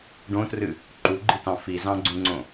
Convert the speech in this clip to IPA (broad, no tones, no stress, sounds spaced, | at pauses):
ɖ õ t r ɨ | ǃ u ɡ͡ǃ i t ɑ̃ f i z ɑ̃ ɡ͡ǀ ũ ŋ͡ǀ õ